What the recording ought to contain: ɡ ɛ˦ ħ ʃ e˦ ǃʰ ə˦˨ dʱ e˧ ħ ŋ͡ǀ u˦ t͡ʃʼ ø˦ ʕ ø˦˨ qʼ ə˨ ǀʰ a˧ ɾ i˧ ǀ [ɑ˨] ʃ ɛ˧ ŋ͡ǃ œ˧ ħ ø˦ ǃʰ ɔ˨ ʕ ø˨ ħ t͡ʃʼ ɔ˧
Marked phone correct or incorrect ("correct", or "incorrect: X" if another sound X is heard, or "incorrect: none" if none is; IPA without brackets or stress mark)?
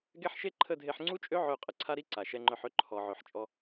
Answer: incorrect: a˨